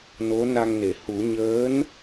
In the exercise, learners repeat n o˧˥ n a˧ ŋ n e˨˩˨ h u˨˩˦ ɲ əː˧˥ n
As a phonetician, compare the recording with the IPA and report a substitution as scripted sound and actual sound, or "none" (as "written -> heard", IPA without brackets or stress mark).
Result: none